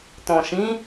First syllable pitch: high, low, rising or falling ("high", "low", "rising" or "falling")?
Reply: low